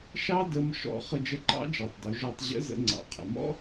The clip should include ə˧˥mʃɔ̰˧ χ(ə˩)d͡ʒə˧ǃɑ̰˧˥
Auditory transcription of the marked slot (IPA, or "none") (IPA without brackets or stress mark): ə˧